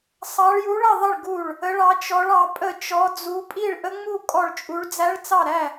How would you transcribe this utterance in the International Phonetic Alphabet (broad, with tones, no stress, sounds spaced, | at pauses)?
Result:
sˤ ɑ˦˥ ɭ j u˦˥ ɭ ə˥˧ ðˤ ə˥˧ ɭ ɡ u˥˧ ɭ | ə˦˥ ɭ ɑ˦˥ t͡ʃ ɔ˦˥ ɭ ɑ˦˥ pʼ ə˥˧ t͡ʃ ɔ˦˥ d͡z u˦˥ pʼ i˥˧ ɭ ʔ ə˦˥ ŋ͡m u˥˧ kʼ ɔ˥˧ ɭ t͡ʃʼ u˦˥ ɭ d͡z æ˦˥ ɭ t͡s ɑ˥˧ ɾ æ˥˧